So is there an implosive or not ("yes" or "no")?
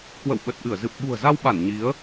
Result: yes